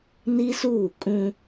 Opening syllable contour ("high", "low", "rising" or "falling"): high